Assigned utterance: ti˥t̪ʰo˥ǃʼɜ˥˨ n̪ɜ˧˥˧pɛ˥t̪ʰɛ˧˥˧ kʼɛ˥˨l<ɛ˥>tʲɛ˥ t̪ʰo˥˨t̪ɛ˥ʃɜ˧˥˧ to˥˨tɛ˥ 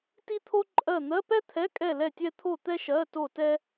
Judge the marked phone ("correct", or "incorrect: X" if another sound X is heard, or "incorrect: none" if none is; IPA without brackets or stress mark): incorrect: ɛ˥˨